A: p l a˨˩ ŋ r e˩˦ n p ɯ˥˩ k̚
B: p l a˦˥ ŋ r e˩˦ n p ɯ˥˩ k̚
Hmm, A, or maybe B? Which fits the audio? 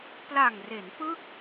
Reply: A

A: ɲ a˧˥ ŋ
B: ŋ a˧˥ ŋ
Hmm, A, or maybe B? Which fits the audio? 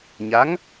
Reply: A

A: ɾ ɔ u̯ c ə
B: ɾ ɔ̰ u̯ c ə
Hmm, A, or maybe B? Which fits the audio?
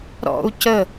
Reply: B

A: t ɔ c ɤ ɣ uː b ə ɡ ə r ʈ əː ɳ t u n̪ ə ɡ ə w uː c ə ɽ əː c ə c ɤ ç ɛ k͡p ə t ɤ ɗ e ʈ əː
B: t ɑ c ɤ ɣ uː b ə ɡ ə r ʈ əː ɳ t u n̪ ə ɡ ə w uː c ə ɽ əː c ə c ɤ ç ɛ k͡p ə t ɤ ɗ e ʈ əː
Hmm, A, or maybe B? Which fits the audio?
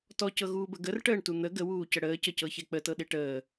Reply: A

